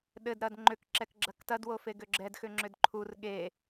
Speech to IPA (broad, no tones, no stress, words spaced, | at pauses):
ɗɘd ɾɐdŋ͡ǃʏk ǁɛkɡ͡ǁɐktɐd wofeɡʏɡ͡ǁɛd xʏŋ͡ǁʏdǃʰur ɠe